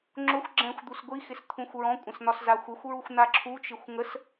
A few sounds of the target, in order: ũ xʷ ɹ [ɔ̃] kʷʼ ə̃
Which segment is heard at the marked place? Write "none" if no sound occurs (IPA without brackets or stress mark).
ɔ̃